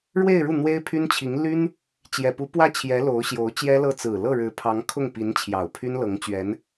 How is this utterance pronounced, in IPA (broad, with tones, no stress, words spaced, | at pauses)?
ɻwe˥˧ɪ̯ɻu˥˩ n̪we˥ɪ̯pʰy˥nt͡ɕʰi˧˥ŋ ly˥n | t͡ɕjɛ˨˩pu˧˥pwä˥˩t͡ɕʰjɛ˧˥ lo˧˥ʊ̯ɕjo˧˥ʊ̯t͡ɕjɛ˥lɤ˥˩ t͡sɹ̩˨˩ lɤ˥˩ɻɻ̩˧˥pʰɑ˧˥ŋ kʰʊ˥˩ŋpi˧˥n t͡ɕʰjɑ˨˩ʊ̯pʰy˥nlɤ˧˥ŋt͡ɕɥɛ˧˥n